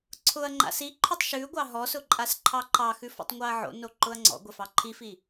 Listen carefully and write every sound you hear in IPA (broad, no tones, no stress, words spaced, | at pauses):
ǀʰʊɐ̯ ŋ͡ǃa̰siǃʰʊtˤ ʃʉɡʷɑ ɦɔsʊ ǃʼasǃʰɑǃɑxʉ fɔ̰tˤŋʷɑɐ̯ʕo̰no ǃʊɐ̯ŋ͡ǀɔ̰ɡʷɛ fɑǃʰifi